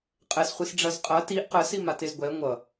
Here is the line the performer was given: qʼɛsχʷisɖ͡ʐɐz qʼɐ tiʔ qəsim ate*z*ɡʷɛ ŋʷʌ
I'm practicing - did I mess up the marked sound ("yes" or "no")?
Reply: no